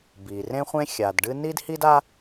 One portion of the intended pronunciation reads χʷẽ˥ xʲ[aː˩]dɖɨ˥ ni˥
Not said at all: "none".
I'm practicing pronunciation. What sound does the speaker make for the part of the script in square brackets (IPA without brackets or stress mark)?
a˩